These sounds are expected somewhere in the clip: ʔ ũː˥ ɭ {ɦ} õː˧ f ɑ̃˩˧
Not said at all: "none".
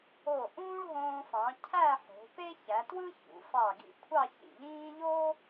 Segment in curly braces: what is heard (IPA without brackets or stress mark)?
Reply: ɦ